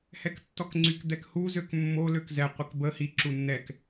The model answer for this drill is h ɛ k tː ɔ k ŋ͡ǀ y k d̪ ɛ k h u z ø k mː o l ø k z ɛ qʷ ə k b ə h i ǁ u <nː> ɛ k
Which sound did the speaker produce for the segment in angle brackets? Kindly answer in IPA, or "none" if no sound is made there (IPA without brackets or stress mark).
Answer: nː